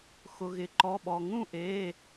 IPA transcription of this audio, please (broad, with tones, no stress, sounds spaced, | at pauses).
x ʊ˩ ɣ ɪ˩ ǃ ɔ˩˧˩ ɓ ɔ˩ ŋ ũ˥˩ ʔ eː˩˧˩